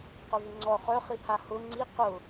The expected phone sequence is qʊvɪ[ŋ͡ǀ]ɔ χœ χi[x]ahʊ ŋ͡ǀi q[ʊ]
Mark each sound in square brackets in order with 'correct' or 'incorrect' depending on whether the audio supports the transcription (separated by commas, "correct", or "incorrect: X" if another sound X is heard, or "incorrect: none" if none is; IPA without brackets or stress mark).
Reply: correct, incorrect: h, correct